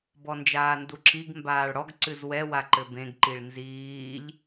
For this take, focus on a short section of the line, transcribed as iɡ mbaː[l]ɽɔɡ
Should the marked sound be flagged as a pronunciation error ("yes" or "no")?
yes